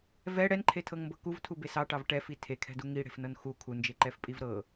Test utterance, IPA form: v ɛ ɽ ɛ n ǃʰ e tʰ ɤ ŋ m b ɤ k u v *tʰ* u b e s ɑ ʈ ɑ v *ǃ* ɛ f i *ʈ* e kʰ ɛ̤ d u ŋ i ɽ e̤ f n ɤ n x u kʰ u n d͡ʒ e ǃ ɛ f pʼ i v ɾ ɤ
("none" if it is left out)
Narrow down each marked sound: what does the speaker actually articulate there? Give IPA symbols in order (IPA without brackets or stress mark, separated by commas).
tʰ, ʈ, tʰ